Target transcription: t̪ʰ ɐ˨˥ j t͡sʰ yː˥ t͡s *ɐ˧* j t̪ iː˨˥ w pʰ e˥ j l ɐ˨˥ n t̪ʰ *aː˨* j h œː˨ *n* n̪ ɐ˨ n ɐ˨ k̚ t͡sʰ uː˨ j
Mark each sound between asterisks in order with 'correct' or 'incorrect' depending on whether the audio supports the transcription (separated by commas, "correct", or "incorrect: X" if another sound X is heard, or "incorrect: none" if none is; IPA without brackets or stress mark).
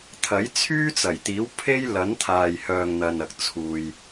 incorrect: ɐ˨˩, correct, incorrect: ŋ